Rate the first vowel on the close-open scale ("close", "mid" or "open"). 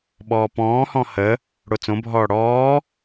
mid